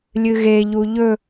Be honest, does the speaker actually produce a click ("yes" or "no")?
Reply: no